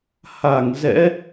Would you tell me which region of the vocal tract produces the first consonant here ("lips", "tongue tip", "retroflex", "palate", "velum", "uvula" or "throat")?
throat